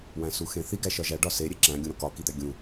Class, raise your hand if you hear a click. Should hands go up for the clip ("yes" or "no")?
yes